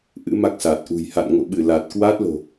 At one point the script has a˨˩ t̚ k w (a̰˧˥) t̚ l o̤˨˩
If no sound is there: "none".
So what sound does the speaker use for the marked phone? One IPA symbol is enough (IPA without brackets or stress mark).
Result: a˦˥